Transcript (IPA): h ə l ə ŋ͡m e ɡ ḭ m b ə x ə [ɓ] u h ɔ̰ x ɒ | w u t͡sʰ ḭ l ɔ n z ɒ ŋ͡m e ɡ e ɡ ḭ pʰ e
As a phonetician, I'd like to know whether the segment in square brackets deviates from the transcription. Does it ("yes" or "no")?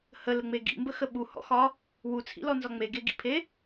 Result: no